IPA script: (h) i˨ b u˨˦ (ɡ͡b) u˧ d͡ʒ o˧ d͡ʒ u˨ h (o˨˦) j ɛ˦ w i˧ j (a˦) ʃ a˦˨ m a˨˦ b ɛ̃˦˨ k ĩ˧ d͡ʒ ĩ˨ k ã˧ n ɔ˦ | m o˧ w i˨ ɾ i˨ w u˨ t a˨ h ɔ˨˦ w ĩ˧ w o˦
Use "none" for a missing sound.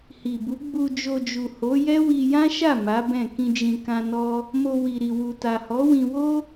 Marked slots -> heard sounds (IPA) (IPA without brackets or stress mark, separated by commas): h, ɡ͡b, o˨˦, ã˦